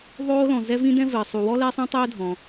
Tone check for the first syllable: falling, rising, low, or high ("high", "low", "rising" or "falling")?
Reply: high